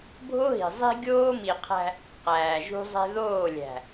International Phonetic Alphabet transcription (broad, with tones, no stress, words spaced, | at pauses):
bʱo˦ɦi̤˨zˤi̤˦ ɡʲoː˦mi˨qʰæ̤˦ | qæː˨ʒṳ˦zˤe̤˦ ðoː˦˨ lʲæ̤˨